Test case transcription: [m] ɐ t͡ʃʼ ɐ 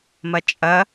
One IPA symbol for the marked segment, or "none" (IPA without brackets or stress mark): m